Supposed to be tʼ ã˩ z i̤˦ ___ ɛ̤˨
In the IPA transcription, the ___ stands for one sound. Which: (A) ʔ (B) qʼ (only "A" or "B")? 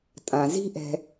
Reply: A